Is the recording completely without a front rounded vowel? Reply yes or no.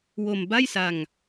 yes